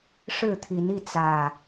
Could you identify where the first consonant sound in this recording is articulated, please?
retroflex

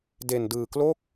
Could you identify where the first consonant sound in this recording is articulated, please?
alveolar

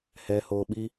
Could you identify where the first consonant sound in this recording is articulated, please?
glottal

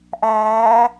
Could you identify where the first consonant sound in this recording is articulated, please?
glottal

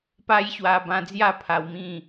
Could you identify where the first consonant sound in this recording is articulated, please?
labial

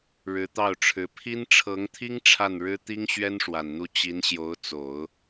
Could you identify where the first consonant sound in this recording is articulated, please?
retroflex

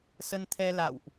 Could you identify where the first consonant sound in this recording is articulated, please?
alveolar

